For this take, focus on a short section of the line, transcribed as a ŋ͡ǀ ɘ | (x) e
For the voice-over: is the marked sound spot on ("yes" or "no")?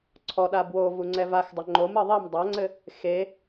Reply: yes